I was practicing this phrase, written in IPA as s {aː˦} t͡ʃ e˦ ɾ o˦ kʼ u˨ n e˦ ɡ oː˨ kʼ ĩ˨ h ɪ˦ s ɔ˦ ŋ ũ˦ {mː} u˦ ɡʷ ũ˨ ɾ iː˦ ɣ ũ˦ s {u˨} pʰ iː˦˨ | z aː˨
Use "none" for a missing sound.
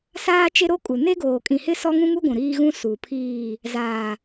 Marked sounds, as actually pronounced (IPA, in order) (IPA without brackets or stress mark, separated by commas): aː˦, ŋ, u˨